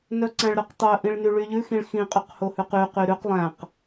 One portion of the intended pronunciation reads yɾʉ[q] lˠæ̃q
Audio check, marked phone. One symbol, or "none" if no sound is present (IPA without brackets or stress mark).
q